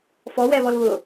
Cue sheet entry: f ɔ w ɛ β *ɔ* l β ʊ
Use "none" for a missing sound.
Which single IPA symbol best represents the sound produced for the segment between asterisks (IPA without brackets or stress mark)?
ɔ